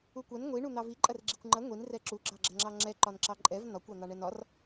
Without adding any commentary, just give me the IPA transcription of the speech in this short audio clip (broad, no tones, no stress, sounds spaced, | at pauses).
u kʷ ɐ n ŋʷ i ɳ u n̪ ɑ v i ǃʼ ɐ r ɡ͡ǁ i kʷ ŋ͡ǃ ɐ ŋʷ i n r ɛ ǁ u ɡ͡ǁ ɑ ɡ͡ǁ ɐ ŋ͡ǁ ɑ ŋ͡ǁ ɛ ǃ ɒ n ǁ ɑ ǃʼ ɛ v n ɒ kʷ ɑ n̪ ɑ ɳ ɛ n ɒ r